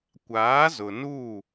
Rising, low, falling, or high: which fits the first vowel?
rising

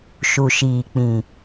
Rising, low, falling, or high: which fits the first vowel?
low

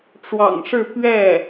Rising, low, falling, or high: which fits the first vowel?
low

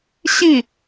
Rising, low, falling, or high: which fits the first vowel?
falling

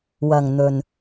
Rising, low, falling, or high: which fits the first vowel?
low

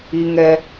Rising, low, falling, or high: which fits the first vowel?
high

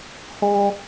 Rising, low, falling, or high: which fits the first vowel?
high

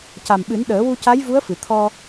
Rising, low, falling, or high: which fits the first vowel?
low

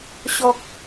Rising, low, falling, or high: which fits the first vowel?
high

